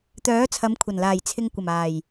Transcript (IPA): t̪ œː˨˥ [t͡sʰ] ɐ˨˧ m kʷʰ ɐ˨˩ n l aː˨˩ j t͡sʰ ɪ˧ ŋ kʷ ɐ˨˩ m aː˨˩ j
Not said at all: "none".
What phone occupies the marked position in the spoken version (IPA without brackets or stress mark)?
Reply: t͡sʰ